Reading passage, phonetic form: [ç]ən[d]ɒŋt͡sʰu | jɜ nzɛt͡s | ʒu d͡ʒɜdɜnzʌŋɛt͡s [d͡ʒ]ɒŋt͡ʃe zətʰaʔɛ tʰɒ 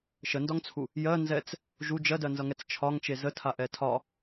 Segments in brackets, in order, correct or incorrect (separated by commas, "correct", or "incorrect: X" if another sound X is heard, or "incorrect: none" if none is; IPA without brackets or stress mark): incorrect: ʃ, correct, incorrect: t͡ʃʰ